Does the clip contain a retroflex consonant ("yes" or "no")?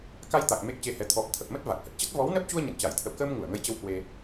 no